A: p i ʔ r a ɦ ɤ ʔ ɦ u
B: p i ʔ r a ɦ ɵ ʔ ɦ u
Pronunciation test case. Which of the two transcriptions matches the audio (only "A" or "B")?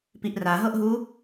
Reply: A